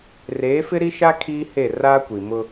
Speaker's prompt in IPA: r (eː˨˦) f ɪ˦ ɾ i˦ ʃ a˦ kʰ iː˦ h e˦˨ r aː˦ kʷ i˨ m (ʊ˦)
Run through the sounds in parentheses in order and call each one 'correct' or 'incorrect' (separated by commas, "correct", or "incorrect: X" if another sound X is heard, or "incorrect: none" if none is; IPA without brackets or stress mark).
correct, correct